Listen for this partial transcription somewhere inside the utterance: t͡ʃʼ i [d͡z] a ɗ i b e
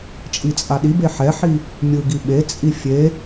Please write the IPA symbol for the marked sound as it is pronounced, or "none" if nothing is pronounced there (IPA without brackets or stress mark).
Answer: t͡sʼ